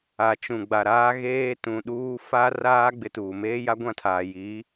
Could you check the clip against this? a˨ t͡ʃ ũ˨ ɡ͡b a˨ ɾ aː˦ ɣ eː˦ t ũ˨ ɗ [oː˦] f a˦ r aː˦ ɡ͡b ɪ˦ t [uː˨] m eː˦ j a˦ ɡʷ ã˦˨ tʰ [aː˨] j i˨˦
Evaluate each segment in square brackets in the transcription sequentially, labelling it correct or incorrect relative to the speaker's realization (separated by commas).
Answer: incorrect, correct, correct